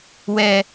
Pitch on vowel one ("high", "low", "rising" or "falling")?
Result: low